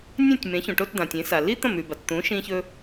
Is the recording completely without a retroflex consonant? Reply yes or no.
no